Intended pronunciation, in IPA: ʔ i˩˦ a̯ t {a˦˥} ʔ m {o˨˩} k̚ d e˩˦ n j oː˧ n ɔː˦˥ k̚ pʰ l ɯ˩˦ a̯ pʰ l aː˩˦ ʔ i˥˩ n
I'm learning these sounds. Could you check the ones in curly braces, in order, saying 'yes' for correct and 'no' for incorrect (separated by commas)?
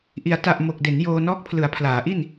no, yes